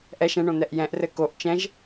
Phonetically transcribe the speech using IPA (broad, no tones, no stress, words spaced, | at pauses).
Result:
ʔɛ ʃɛ̃ɳõ n̪ɛʔjɛ̃ʔrɘ koʔ t͡ʃɛ̃ʒ